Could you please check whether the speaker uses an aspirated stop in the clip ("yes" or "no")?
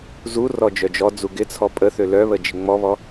yes